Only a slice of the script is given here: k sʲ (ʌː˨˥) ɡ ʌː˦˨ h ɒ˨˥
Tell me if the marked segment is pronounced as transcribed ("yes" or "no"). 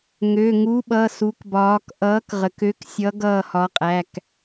no